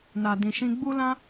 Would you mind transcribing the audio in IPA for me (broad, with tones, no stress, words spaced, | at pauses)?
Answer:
na˨dĩ˨ʃĩ˧ ɡ͡bu˦lã˦